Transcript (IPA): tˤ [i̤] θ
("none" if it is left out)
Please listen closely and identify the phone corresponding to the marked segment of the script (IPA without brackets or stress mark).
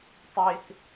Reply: i